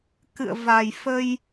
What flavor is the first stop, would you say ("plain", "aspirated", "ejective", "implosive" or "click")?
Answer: plain